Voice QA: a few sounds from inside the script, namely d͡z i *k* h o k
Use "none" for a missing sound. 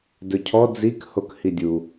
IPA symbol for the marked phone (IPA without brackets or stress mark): k